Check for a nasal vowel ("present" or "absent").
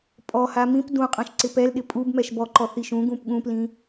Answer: present